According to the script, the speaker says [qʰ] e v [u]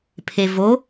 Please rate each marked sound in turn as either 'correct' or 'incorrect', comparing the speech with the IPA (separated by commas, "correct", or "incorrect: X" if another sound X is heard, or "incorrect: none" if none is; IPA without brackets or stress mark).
incorrect: pʰ, incorrect: o